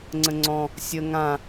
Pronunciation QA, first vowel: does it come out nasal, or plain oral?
nasal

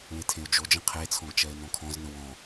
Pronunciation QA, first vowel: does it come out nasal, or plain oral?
nasal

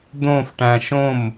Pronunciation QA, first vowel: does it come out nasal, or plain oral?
nasal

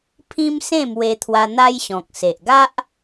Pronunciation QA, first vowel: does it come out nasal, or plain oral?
nasal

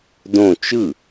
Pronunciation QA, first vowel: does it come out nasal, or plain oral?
nasal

